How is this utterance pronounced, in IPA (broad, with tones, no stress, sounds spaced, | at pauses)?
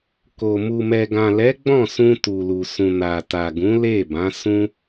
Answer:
k o˨ m u˨ m ɛ˨ ɡ ã˨ l ɛ˨˦ ɡ͡b ɔ̃˦˨ s ũ˧ t u˨ l u˨ s ũ˨ n a˨ t a˨ ɡ ũ˨˦ l e˦˨ b ã˨˦ s ũ˦